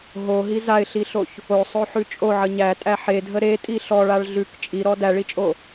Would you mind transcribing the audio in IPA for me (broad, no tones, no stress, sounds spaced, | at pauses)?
ɦ o ɦ i z a ɪ̯ ɬ i ɬ o ç | o sˤ o ħ ʉ t͡ʃʼ o ʕ ə ɲ æ tʼ æ ħ e dʱ ə ɾ e tʼ i ɬ ɔ ɭ a ɭ ɮ ʉ k t͡ʃʼ i ɾ ɔ d æ ɭ i t͡ʃʼ o